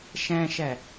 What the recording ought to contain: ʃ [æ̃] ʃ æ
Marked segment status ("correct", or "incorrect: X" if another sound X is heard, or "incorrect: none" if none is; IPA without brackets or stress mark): correct